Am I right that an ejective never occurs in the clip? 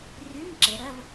yes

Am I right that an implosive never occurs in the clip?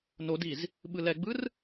no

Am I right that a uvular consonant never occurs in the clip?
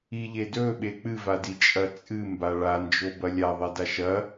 yes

